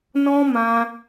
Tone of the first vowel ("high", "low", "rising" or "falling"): high